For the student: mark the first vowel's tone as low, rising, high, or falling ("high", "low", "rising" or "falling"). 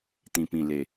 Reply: low